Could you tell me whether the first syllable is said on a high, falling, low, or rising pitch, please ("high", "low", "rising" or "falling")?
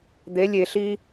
rising